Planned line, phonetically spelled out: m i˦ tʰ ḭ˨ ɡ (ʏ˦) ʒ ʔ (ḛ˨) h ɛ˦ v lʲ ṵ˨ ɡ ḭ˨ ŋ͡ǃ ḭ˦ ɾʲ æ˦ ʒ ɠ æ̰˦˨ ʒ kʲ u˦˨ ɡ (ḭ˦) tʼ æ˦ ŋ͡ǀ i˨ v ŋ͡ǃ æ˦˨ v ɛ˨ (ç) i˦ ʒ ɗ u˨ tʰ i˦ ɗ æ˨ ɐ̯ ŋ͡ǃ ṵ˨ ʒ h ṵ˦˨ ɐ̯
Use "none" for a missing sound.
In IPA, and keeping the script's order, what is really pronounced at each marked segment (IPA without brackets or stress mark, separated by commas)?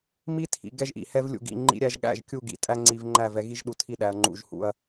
ɛ˦, ḭ˨, ḭ˨, ɣ